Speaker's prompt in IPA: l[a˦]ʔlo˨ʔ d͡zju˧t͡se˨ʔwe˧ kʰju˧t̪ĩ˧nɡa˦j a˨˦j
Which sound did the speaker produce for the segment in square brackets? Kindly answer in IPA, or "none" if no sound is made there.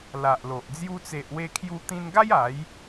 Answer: a˨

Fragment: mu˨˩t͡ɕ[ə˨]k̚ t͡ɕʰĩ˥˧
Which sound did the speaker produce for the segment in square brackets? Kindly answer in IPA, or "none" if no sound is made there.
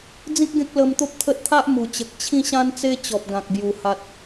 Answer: ə˨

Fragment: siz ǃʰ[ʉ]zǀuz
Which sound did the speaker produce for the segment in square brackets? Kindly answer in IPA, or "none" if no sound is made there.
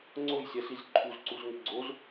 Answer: u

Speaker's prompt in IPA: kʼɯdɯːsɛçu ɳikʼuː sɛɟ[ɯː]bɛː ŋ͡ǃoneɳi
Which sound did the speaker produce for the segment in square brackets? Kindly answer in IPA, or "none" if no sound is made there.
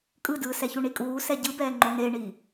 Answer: ɯ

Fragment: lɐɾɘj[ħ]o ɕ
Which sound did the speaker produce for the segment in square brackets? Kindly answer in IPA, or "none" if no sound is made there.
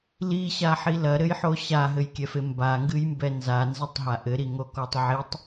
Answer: ħ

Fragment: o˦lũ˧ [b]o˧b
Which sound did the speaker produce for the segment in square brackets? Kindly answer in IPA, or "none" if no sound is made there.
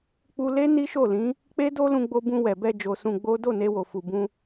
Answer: ɡ͡b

